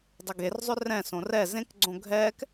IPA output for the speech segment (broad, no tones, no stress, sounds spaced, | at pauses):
dˤ ə ɡ e r zˤ ʏ r ɛ̃ s õ r ɛ z ẽ k ɡ͡ǀ õ ɡʱ ɛː k